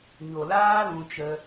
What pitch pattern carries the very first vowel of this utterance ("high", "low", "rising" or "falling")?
low